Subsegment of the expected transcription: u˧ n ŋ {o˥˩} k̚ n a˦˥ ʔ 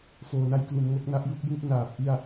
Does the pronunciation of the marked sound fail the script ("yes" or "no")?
no